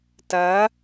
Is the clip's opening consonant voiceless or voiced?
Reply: voiceless